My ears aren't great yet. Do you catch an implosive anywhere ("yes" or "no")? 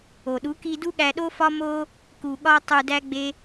yes